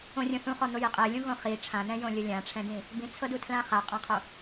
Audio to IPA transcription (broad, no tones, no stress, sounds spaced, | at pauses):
õ rʲ õ θ ũ χ ɔ n̪ o j i qʼ e lʲ ũ ɣ õ χ i ʈ͡ʂʰ ã n̪ ɛ̃ j õ lʲ ɤ lʲ ã ʈ͡ʂʰ ɛ̃ d ĩ | b ĩ t͡sʰ ɤ d u tʰ l ã χ a qʼ ã qʰ o